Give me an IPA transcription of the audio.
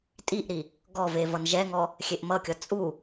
tʼiʔɾi | ɡɔve vʌnʒɛŋɔ | xʲeʔmʌkʲʌ t͡sʼu

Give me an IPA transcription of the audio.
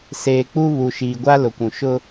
seː˨ k͡pu˦ βu˨ ʃiː˨ɡʷa˦ lʊ˨kʷũ˨ ʃʊ˦

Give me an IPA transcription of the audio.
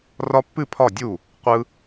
rɒ˦pːɨ˥˩ pʰɒ˥˩dʲu˥˩ | qʷɯ˦

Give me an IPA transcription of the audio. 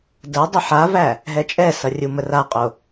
də dˤəħavæ | ɦɛt͡ʃʼɛsʌ rʲuməraqʼo

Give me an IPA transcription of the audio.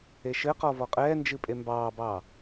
eʃɘqɔ vɔqʼɛːnd͡ʒɨ pʼembɑːbɑː

